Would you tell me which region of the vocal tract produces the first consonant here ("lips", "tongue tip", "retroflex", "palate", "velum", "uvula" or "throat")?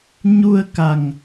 palate